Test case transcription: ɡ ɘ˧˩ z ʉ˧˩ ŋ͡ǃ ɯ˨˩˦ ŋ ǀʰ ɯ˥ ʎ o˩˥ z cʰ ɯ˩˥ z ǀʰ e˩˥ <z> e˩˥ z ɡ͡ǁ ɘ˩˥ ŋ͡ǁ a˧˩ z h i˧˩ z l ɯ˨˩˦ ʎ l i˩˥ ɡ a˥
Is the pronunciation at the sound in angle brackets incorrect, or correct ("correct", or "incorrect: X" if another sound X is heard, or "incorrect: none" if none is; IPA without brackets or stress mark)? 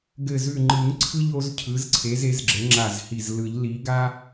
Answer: correct